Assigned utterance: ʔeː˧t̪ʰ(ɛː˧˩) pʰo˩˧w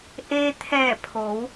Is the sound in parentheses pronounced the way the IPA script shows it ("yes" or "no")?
yes